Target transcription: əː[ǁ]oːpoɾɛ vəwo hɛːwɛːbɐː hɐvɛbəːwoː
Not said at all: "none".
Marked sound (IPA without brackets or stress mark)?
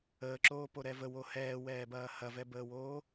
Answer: ǁ